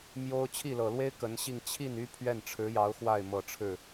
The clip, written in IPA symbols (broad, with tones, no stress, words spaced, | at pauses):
mjo˥ʊ̯ t͡ɕʰi˥˩lɤ˨˩lwe˥ɪ̯ kə˧˥nɕi˥˧ŋ t͡ɕʰi˥˩ny˥ pʰɥɛ˥˩nʈ͡ʂʰɻ̩˧˥jɑ˧˥ʊ̯ xwa˥˩ɪ̯mɤ˨˩ʈ͡ʂʰɻ̩˥˩